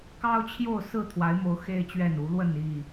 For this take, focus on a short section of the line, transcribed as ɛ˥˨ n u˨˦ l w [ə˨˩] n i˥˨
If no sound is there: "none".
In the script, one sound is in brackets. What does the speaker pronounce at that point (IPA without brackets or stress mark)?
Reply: ə˥˨